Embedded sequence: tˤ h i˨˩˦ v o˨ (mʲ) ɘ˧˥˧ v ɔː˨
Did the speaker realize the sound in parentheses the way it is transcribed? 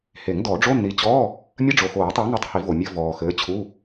yes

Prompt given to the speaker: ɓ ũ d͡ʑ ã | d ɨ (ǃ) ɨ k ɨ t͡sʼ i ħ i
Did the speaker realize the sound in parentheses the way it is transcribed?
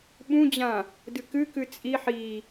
no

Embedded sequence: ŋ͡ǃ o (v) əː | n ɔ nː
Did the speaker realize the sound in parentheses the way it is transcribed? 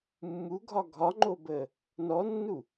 no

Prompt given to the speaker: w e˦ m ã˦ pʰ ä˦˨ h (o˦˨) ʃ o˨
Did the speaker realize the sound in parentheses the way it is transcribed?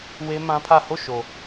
yes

